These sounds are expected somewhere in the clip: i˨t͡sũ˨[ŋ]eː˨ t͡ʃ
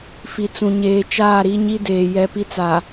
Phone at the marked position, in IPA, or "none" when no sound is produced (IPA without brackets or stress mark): ɲ